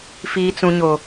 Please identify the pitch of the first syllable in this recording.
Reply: high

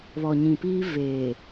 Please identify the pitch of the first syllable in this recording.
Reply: low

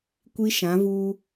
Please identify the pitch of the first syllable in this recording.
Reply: high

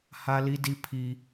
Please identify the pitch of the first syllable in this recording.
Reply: high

